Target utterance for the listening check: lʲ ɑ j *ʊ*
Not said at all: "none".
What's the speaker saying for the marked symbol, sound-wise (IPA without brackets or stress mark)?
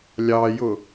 ʊ